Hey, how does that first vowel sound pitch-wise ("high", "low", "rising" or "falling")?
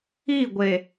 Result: falling